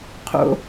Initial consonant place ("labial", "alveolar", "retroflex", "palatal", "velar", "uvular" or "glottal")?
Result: uvular